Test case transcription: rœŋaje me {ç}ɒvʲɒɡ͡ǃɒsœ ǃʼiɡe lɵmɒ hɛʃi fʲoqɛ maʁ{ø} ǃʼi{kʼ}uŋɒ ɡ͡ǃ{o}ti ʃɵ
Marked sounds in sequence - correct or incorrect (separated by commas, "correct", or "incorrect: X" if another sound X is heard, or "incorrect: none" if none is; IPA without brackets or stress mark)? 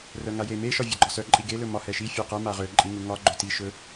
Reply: incorrect: ʃ, correct, incorrect: ŋ, incorrect: ɵ